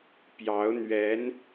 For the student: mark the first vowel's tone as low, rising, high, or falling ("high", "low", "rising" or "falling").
rising